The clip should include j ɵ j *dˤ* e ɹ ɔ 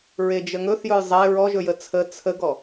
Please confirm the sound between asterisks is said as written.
no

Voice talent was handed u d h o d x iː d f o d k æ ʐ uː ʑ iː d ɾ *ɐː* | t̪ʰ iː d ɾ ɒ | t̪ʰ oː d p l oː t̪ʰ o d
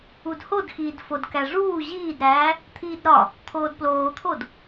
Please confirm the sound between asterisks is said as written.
no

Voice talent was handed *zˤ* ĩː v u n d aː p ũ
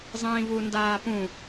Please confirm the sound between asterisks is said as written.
yes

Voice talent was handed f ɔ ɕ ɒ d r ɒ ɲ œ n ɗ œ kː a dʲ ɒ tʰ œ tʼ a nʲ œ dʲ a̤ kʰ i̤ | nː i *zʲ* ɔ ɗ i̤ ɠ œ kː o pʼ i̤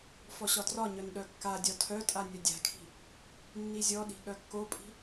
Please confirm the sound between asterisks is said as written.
yes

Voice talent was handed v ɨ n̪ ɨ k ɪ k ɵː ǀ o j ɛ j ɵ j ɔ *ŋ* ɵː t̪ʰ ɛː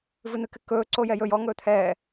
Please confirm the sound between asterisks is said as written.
yes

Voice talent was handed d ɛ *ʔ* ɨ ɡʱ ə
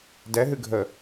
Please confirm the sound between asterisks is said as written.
no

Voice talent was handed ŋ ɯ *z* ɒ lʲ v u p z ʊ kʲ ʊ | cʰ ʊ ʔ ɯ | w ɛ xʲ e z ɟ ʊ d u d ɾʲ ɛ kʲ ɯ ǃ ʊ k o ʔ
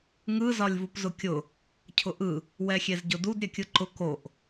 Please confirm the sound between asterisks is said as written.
yes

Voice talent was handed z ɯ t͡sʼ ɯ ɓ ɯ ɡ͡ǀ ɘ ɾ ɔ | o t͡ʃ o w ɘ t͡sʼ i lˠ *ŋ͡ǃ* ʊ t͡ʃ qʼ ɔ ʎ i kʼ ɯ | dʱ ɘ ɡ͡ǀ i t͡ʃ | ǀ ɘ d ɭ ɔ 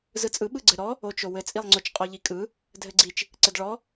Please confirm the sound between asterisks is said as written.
no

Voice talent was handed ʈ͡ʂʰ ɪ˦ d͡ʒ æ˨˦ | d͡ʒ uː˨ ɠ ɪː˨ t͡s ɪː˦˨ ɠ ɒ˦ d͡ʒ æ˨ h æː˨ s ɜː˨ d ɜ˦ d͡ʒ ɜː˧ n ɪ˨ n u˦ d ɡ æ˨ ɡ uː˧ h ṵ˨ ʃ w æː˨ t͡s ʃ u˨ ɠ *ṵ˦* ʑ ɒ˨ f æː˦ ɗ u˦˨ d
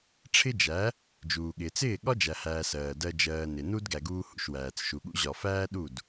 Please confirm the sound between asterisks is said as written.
yes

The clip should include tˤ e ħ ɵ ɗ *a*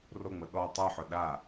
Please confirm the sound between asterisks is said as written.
yes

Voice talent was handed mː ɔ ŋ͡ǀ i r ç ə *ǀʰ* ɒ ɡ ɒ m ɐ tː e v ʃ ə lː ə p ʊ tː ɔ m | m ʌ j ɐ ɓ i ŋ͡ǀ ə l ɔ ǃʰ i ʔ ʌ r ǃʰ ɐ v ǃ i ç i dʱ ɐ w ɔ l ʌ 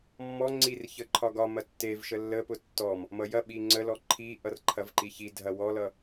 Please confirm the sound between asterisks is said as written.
no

